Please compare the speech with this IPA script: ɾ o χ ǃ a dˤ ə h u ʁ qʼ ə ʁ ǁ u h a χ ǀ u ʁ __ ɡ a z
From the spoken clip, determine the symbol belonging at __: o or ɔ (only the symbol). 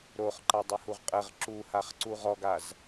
ɔ